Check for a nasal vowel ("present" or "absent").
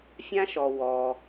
present